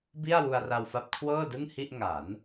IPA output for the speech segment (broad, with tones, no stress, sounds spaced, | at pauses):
b i˥˩ a̯ w u˧ a̯ r a˧ w f a˦˥ p̚ kʰ w ɤː˥˩ d ɯ˥˩ ŋ h i˥˩ ʔ ŋ a˩˦ n